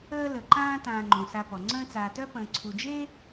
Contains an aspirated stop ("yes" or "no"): yes